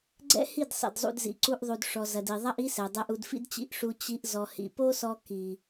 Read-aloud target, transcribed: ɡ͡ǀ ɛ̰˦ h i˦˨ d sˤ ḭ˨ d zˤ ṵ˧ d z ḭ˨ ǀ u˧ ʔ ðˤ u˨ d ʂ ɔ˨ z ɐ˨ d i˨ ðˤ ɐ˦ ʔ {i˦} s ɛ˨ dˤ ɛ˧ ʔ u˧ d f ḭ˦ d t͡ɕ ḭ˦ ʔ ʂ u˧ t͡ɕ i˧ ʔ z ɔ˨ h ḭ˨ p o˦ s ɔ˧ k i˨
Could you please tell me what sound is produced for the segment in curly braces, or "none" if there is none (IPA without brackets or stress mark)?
i˦